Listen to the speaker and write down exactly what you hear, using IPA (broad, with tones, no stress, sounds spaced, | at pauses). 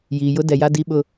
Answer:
j iː˨ j ʊ˦ d ɛ˨ j a˦ d i˦ ɓ ʊ˦